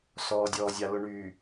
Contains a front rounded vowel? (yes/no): yes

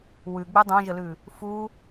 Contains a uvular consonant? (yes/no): no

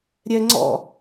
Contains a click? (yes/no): yes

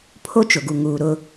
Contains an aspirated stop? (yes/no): yes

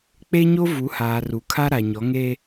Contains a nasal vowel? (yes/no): no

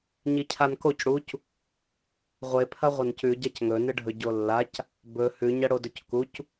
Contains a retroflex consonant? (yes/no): yes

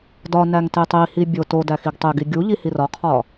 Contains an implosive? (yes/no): no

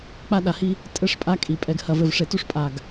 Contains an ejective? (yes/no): yes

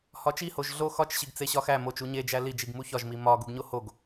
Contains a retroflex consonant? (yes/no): no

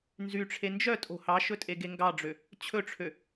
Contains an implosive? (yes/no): no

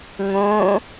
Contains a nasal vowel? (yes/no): yes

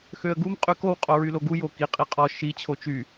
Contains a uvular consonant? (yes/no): yes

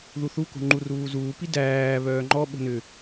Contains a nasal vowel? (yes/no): no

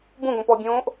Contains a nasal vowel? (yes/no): yes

